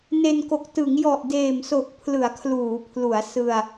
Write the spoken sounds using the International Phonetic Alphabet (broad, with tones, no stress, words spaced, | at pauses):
ne˧nko˨˩k̚ tɯ˩˦ŋjɔ˨˩ʔdeː˨˩mso˨˩k̚ pʰlɯ˩˦a̯kʰluː˩˦pʰlu˩˦a̯ sɯ˧a̯